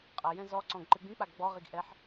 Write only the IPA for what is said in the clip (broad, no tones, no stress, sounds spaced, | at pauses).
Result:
qʼ ɐ j ɛ̃ z ɔ ǀ ɔ̃ ɡ ǃ ɨ ɡ͡b ĩ k͡p a ɡ ɡ͡b ɔ ʁ i ɡ ʔ ɛ ħ